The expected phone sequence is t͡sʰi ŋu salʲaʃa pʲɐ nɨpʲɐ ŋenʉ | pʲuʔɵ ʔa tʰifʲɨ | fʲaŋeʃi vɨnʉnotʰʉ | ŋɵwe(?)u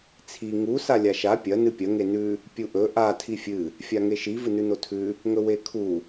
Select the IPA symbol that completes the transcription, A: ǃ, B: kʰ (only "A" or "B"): B